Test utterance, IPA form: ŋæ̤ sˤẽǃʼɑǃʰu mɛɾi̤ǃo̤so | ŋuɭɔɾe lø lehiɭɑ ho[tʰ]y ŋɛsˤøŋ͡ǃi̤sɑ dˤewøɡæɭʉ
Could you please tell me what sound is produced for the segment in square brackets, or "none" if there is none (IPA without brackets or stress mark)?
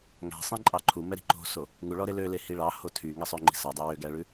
tʰ